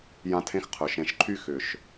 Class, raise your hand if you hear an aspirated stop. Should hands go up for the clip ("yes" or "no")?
yes